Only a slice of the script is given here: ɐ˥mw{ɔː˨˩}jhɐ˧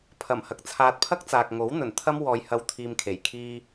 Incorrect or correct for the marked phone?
incorrect: ɔː˨˧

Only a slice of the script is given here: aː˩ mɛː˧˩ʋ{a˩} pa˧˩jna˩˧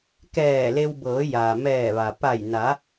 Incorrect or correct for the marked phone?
correct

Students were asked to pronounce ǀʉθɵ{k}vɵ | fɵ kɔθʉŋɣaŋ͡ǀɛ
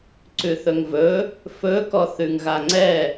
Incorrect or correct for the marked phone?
incorrect: ŋ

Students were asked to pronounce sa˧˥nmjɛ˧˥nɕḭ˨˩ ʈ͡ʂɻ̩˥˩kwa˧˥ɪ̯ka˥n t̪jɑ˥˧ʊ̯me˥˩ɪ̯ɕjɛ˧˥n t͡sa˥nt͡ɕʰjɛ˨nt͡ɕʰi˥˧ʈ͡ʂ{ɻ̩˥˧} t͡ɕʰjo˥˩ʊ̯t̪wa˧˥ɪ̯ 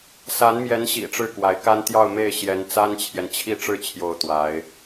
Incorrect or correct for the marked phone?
correct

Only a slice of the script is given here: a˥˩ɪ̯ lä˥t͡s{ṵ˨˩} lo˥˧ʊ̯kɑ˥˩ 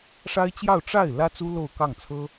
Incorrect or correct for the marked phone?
incorrect: u˥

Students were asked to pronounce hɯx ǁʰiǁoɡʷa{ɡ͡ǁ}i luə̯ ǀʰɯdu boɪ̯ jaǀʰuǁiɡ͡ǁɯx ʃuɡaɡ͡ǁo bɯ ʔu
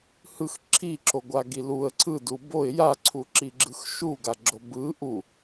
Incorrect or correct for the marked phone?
incorrect: ɡ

